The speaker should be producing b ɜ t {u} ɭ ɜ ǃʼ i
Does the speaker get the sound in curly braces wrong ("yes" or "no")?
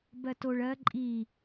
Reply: yes